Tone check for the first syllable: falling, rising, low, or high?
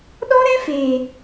high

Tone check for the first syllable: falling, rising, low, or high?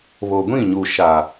low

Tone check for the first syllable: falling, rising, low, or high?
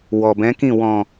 low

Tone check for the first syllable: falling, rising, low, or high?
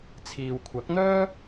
low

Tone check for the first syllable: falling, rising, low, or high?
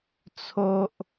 high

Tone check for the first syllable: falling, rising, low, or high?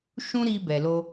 high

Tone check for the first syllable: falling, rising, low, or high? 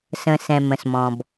low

